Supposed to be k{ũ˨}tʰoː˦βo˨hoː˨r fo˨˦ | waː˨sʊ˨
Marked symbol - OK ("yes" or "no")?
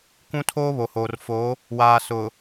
no